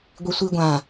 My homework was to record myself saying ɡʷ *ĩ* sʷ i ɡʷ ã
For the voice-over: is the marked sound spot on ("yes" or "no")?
no